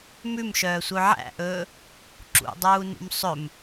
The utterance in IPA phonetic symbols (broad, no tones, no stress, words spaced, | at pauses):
mʉmʃœːsʷœ ʕæ̰ʔɵː | ǁṵdˤuːnṵm sˤɵm